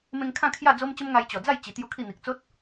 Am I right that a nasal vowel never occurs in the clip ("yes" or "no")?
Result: no